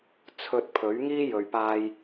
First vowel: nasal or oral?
oral